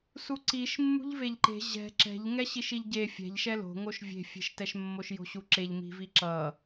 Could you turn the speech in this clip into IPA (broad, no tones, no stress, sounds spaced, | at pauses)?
s u ǀ i ʃ mː ṳ ʎ v e ʎ ǃ e̤ ʑ ɛ̤ ǁ ɛ̤ ʎ ŋ ɛ ɕ i ʃ i ʎ ɟ e fʲ ɛ̤ ʎ ʃ ɛ l o̤ ŋ o ʃ vʲ e̤ fʲ e̤ ʃ t ɛ ʃ mː o ʃ j o̤ ɕ u ǁ e ʎ m i̤ v i ǁ ʌ